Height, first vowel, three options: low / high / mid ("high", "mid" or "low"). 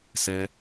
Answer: mid